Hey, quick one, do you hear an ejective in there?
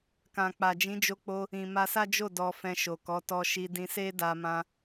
no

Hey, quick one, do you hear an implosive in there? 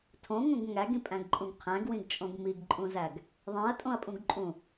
no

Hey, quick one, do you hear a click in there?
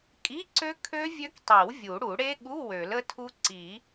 yes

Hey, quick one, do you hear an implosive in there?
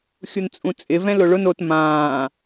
no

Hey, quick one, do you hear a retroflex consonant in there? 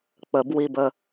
no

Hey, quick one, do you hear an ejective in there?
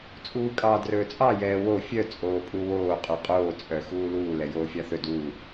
yes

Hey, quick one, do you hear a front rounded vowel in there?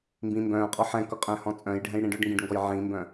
yes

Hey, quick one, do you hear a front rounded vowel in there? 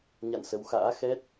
no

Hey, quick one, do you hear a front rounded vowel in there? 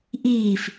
no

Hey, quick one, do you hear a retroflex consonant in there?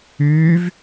no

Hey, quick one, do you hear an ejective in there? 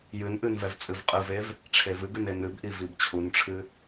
yes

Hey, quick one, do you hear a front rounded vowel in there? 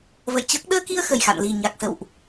no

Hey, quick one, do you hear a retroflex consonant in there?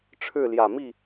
yes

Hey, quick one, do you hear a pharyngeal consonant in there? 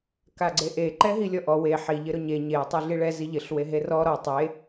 yes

